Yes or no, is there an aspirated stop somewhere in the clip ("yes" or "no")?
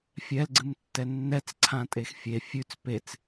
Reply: yes